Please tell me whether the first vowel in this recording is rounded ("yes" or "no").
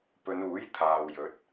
yes